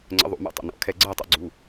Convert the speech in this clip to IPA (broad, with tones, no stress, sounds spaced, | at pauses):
ŋ͡ǀ ə̰˧˥ ðˤ ṵ˧˩˧ m ɛ̰˥˧ tˤ ə̰˧˩˧ n ɔ̰˩˧˩ kʰ ɛ˥˧ ɡ͡ǀ ɜ˥˧ tˤ ṵ˥˧ ɡ͡ǀ u˩˧˩